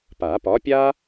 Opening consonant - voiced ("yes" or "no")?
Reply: no